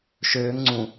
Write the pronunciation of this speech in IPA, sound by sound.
ʃ øː ŋ ŋ͡ǀ ũ

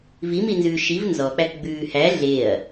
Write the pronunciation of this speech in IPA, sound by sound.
v i m i n z ʉː ʃ i v n z ɔ k͡p æ k ɡ͡b ʉː h æ ɮ e ɐ̯

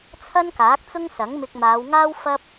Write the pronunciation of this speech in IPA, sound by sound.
t͡sʰ ɐ˥ n k aː˨˥ k̚ t͡s ʊ˥ ŋ s ɐ˨˥ ŋ m ɪ˧ k̚ m aː˨˧ w ŋ aː˥ w f ɐ˥ p̚

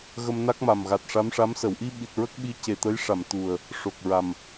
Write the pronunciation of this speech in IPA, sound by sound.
ɣ ə˧ m n a˦˥ k̚ m a˨˩ m ɣ a˨˩ t̚ ʂ a˧˥ m ʂ a˧˥ m s ə˨˩˨ w ʔ i˧ ɓ i˨˩ t̚ ɹ ə˦˥ k̚ ɓ i˧˥ c e˨˩ t̪ ə˧˥ j ʂ a˨˩˨ m t̪ u˨˩ ə̯ | ʂ o˨˩ k̚ ɹ a˨˩ m

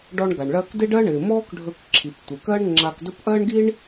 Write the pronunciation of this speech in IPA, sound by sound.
ɖ ɔ˧ ɳ ɡ a˩ ɳ ɭ ɜ˧ k d ɪ˥ ɖ ɜ˥ ɳ ɪː˩ m ɔː˥ k ɖʱ ɵ˧ k ǁʰ i˩ p tʷ ɪ˩ k ɜ˥ ɳ ŋ͡ǁ a˧ k d ɵ˥ p ʔ ɜ˥ ɳ ɡ i˥ ɳ

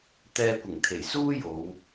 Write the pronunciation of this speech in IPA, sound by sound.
t̪ ɛː˧ kʷ ɪ˨˩ ŋ t̪ʰ e˨˩ j s uː˥ j o˨˧ w

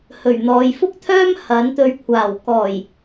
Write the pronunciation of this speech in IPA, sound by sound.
h ɵ˨˩ ɥ n̪ ɔː˨ j f ʊ˥ k̚ t̪ʰ œː˥ m h ɐ˨˥ n t̪ ɵ˧ ɥ kʷʰ aː˨˩ w k ɔː˨˩ j

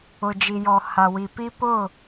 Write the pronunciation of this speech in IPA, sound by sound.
ʊ˨ d͡ʒ i˨ j ɔ˨ h a˨ w i˨ p i˦ p ʊ˦˨

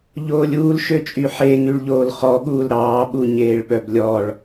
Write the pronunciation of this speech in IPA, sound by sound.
ʎ oː lʲ uː l ʃ ø t͡ʃʼ y ħ e ŋ y ɭ ʎ oː l χ ɔ ɠ uː l ɾ ɑː ɓ u ɲ eː ɭ ɓ œ b lʲ ɔ ɭ

